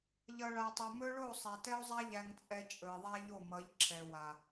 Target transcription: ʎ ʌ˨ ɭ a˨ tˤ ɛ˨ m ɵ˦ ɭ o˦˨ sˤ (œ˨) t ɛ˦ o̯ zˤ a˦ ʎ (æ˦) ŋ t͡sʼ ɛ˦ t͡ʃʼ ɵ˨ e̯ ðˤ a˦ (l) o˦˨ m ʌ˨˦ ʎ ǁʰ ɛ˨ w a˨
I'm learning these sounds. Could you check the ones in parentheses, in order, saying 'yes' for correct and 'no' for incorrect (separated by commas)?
no, yes, no